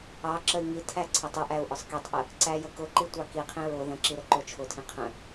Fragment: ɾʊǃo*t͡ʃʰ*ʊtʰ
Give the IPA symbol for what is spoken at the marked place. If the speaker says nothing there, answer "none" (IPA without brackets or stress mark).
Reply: t͡ʃʰ